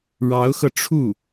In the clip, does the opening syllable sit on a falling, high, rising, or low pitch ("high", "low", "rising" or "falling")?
rising